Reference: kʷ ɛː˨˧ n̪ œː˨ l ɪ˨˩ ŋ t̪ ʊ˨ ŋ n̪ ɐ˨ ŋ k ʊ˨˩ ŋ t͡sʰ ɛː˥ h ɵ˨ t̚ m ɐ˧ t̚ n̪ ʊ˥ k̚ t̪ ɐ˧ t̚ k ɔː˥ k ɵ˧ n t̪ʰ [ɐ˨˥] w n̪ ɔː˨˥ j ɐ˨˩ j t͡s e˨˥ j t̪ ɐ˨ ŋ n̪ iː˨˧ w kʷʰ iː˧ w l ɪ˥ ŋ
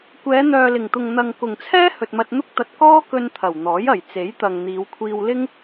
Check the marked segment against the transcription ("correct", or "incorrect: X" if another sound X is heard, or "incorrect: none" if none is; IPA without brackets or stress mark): incorrect: ɐ˨˩